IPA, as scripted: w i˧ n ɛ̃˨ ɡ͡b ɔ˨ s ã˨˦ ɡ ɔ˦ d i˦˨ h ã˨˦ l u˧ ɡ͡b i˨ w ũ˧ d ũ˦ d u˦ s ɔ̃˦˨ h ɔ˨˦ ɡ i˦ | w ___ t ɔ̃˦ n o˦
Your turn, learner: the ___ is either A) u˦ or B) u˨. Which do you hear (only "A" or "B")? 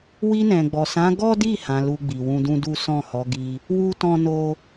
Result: A